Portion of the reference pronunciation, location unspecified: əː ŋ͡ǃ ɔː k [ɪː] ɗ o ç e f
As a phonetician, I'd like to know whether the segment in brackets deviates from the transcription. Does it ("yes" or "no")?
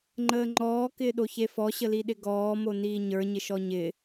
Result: no